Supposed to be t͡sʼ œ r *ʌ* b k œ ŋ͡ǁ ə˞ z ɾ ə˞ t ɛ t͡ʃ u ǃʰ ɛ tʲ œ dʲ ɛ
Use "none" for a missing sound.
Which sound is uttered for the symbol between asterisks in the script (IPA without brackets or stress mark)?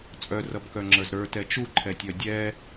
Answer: ʌ